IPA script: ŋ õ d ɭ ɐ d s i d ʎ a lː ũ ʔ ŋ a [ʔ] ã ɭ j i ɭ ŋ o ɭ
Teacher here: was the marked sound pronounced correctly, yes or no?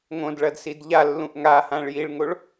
no